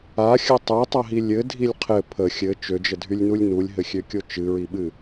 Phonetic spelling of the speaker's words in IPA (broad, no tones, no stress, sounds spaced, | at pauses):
a xʲ ə tˤ ø tˤ ə ɦ i lʲ ɘ dʱ i lʲ qʰ ɘ pʰ ə xʲ ɘ t͡ʃ ø d͡ʒ ə dʱ y lʲ n u lʲ n u lʲ ɦ ɘ xʲ ø kʲ o t͡ʃ ɨ ɹ i ɓ ɨ